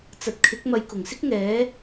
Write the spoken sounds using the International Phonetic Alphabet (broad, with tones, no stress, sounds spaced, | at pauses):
t͡s ɐ˨ t̚ kʰ ɪ˨˥ k̚ m ɐ˨˧ j k ʊ˨˩ ŋ s ɪ˥ k̚ ŋ ɛː˨˥